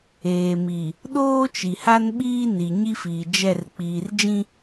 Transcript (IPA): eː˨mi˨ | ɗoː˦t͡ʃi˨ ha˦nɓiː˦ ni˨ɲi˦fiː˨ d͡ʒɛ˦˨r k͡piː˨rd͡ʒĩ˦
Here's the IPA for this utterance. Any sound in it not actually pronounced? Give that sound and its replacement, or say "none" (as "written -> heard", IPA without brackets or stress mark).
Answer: none